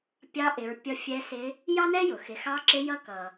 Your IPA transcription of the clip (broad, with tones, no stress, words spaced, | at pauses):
pʲɑ˧˥ʔɪ˩˧ɹ pʲʌ˧ fʲɛ˧˥sɪ˧˥ | jɑ˥nɛ˥jʊ˩ xɪ˩˧xɑ˧˥ǁɪ˧˥jʌ˧˥ kʌ˩